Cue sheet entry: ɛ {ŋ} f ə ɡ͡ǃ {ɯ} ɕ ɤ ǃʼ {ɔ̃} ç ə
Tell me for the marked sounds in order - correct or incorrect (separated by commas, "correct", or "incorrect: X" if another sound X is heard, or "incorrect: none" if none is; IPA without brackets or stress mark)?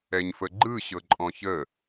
incorrect: ɲ, correct, correct